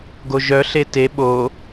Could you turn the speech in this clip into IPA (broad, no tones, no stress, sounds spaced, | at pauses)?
ɡ o ʒ œ ɬ e t e ɓ o